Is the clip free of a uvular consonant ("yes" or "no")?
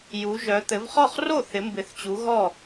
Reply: no